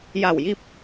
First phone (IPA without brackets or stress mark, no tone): j